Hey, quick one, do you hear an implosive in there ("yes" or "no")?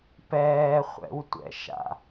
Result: no